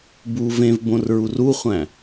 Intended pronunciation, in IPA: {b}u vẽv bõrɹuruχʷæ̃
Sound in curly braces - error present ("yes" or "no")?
no